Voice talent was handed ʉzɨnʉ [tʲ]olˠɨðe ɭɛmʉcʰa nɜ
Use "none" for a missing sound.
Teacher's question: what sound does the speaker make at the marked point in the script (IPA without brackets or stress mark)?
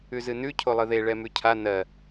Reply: cʰ